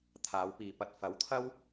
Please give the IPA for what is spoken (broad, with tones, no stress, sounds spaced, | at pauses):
t̪ʰ aː˨˧ w p iː˨ p ɐ˧ t̚ f ɐ˨˥ w t̪ʰ ɐ˥ w